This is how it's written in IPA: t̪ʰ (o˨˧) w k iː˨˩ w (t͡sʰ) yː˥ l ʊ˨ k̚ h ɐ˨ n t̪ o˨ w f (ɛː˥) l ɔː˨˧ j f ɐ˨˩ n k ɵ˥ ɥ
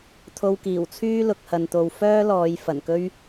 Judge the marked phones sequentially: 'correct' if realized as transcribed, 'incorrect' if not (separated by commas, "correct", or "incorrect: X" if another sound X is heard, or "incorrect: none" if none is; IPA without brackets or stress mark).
incorrect: o˧, correct, incorrect: œː˥